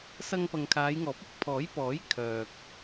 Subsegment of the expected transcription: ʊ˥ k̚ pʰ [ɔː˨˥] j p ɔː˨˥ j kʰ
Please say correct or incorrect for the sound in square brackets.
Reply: correct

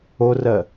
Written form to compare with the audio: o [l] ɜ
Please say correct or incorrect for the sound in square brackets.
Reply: incorrect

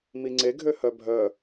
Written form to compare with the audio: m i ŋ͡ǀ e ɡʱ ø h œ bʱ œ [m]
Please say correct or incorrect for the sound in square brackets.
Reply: incorrect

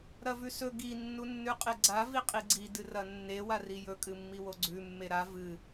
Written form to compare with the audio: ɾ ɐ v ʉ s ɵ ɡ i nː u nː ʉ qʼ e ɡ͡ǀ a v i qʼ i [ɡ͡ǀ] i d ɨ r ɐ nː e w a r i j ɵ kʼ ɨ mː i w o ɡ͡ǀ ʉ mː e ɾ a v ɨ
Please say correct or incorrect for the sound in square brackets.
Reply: correct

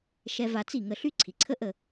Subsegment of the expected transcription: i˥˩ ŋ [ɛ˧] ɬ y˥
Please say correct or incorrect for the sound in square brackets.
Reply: incorrect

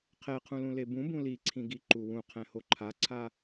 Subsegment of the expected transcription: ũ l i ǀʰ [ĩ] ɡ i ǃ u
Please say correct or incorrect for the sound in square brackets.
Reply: correct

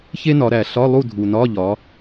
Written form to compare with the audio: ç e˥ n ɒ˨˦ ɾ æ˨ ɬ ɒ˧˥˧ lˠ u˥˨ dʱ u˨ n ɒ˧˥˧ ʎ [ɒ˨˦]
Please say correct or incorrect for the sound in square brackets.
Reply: correct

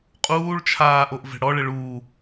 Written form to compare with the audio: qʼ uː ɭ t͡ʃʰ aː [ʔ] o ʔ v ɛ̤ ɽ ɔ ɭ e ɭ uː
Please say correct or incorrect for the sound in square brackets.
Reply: correct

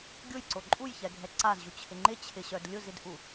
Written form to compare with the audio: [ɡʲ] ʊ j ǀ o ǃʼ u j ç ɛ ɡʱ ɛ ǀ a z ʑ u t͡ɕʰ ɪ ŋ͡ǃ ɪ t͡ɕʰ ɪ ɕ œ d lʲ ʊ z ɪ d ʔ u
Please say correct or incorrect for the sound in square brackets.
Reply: correct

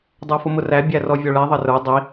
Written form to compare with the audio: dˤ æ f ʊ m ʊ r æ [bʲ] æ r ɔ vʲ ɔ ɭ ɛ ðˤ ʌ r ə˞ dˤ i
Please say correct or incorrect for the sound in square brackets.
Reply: correct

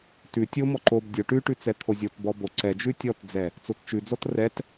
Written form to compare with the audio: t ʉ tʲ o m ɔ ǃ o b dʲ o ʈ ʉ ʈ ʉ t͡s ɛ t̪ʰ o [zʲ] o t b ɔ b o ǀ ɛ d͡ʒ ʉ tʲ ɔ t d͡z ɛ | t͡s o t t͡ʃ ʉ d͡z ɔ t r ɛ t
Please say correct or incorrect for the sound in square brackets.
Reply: correct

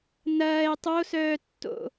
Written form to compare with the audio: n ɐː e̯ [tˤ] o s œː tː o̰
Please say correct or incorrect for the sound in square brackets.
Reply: correct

